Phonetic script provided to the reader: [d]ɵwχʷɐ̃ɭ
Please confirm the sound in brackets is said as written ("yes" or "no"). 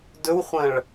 yes